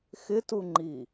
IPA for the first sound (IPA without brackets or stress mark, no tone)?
x